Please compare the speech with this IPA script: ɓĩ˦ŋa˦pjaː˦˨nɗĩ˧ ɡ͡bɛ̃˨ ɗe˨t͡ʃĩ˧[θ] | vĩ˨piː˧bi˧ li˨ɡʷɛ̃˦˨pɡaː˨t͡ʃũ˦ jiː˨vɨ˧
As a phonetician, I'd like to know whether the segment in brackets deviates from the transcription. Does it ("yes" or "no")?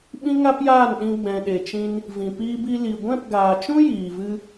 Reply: yes